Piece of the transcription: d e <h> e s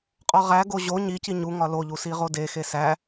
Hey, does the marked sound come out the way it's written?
no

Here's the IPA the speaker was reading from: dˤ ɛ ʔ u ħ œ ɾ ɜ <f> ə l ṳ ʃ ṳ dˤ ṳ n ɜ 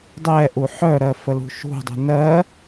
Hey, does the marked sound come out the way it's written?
yes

